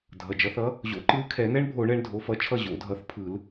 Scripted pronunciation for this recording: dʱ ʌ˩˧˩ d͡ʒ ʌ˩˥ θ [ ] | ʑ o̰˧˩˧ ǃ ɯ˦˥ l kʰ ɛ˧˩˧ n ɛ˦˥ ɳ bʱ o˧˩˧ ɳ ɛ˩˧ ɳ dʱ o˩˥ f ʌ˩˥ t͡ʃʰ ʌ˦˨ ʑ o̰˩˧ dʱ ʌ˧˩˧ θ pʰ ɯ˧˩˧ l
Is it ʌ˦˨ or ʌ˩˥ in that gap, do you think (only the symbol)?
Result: ʌ˩˥